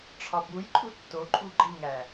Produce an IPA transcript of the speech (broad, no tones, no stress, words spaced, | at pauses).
ʈ͡ʂʰɒbujǃʼu tːoǃʼu ɡ͡ǃiŋæ